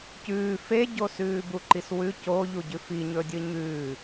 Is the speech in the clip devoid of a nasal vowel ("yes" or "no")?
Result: yes